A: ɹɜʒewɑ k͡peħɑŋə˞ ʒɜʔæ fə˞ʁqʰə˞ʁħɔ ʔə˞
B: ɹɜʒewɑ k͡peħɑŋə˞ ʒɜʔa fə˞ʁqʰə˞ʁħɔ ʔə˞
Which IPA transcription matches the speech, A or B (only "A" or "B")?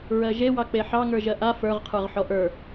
B